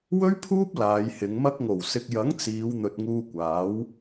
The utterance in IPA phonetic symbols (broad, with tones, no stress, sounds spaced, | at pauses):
w ɵ˥ ɥ pʰ uː˥ p̚ l aː˨˧ j h ɪ˨˧ ŋ m ɐ˧ k̚ ŋ o˨˩ w s ɪ˨ k̚ j ɐ˨˥ ŋ t͡s iː˨˧ w n̪ ɵ˨ t̚ ŋ uː˧ kʷ aː˨˥ w